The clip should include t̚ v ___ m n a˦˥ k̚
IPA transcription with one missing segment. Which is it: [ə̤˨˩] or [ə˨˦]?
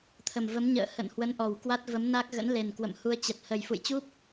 ə˨˦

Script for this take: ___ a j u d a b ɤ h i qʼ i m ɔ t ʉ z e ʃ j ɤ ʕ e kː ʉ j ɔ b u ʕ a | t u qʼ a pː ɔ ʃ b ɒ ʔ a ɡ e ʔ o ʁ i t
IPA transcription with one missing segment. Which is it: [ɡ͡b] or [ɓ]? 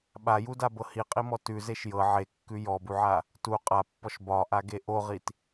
ɓ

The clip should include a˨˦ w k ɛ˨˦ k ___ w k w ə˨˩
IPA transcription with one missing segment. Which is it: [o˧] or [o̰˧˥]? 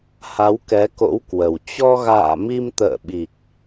o̰˧˥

